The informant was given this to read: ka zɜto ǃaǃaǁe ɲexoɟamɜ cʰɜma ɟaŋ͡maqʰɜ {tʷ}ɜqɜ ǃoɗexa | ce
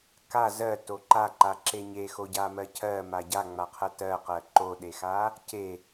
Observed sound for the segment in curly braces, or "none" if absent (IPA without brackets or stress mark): t